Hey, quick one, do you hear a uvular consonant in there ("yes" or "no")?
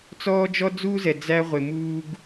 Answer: yes